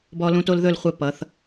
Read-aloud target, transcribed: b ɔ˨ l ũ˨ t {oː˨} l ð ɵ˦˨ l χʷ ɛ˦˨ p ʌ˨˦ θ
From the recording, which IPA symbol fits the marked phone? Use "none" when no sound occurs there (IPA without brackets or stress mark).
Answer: o˨